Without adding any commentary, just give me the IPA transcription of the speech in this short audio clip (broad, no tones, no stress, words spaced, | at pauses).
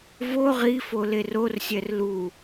vo ʁifo lerorsʲɛr lu